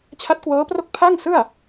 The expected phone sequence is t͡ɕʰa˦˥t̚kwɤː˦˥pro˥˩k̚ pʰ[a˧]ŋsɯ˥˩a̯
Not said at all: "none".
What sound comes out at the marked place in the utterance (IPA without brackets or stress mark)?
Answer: a˥˩